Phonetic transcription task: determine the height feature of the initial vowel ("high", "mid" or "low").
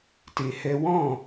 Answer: mid